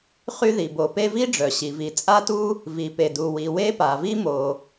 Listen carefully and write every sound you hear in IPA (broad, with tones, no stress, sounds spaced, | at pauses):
χ y˥ ð i˩ b o˩ p e˥ v i˥ ɖ͡ʐ œ˩ ɕ i˩ v i˩ t͡sʼ a˥ t u˥ | v i˩ p e˩ d u˩ w i˩ w e˥ p a˩ v i˥ m o˩